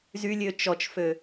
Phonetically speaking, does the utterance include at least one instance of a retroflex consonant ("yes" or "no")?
no